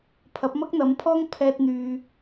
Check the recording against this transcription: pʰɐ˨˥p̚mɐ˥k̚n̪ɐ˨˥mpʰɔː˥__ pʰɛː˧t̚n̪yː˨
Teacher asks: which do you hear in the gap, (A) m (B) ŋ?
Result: B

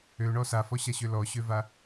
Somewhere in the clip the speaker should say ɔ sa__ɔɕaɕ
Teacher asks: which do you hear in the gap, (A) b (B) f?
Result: B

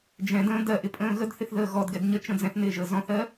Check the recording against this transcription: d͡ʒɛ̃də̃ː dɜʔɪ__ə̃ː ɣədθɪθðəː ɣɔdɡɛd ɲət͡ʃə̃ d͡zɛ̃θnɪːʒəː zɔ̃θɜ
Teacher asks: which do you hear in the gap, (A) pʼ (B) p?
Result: A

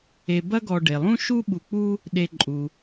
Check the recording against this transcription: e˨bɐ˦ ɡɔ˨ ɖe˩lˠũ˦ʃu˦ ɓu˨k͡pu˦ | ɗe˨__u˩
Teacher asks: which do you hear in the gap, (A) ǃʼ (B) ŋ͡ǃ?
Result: A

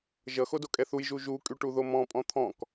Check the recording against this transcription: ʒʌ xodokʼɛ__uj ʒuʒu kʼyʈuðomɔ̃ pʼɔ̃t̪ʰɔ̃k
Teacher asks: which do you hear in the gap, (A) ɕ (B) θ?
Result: B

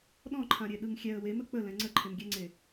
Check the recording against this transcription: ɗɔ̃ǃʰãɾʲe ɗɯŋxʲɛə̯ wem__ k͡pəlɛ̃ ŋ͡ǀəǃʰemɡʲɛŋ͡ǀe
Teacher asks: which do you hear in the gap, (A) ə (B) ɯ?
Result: A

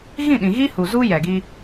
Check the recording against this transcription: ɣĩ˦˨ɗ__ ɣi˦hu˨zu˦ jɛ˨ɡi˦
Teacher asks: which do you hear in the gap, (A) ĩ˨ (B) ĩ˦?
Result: A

